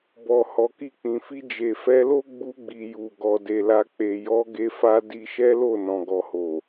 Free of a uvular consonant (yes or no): yes